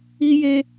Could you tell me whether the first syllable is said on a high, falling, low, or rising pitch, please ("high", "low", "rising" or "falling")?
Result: high